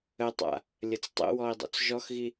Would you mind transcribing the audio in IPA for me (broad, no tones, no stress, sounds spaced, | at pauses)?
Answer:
ə tˤ a̰ | lʲ ə t͡s tˤ ə̰ w ɔ i̯ dˤ o̰ t͡s ʒ ɔ x ɣ i